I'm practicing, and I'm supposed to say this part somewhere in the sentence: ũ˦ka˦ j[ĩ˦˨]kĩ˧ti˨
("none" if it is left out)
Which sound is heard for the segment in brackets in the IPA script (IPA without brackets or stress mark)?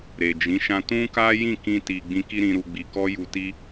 ĩ˦˨